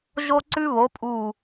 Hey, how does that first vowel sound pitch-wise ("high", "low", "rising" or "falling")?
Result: high